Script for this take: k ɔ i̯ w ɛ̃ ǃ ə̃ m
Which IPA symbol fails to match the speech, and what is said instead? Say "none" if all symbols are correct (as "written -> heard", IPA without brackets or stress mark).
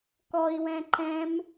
ə̃ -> ɛ̃